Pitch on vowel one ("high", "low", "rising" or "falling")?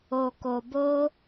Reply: low